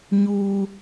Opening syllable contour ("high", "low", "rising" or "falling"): low